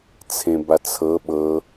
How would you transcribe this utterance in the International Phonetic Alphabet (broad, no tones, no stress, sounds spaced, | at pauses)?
t͡sʰ ẽ b a t͡sʰ ɤ ɓ ɤ